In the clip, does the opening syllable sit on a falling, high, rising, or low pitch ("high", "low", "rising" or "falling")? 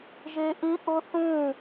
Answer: high